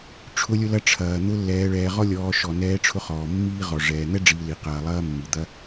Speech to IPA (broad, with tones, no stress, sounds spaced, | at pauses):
ʈ͡ʂʰ ʊ˧ lʲ ʊ˧ l ɐ˧ ʈ͡ʂʰ ɐː˨ n̪ ʊ˧ lː ɛː˧ ɭ ɛː˧ ʁ ɔ˦ lʲ ɔː˧ ʃ ɔ˨ n ɛː˧ ʈ͡ʂʰ ʊ˧ χ ɔː˨ mː iː˦ ʁ ɔ˨ ʐ ɛː˨ n̪ ɛ˦ ɖ͡ʐ iː˨ l i˨ q ɐː˨ lˠ ɐː˧ mː i˨ d̪ ɐ˦